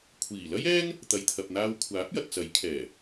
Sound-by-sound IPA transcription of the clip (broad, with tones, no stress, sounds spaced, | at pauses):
kʷʰ iː˨˩ l ɐ˥ j ɛː˥ ŋ | t̪ ɐ˨ j t̪ʰ ɐ˨ p̚ n̪ aː˧ w kʷʰ aː˨˥ p̚ j ɐ˨ t̚ t͡s ɐ˨˥ j kʰ ɛː˨˩